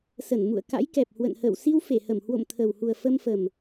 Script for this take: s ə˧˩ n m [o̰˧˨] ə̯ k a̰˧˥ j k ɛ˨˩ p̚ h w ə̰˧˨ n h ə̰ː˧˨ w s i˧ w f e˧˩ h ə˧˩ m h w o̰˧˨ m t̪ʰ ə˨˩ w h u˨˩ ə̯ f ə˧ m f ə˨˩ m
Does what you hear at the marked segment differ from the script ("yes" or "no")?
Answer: yes